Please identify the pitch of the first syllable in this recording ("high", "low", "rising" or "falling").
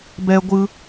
high